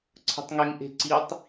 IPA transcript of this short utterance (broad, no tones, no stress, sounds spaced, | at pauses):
ǀʰ ə̤ tˤ ŋ e ŋ ʔ e̤ ǀ i tˤ